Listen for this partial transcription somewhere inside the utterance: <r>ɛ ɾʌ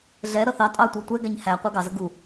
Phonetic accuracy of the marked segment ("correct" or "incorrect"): incorrect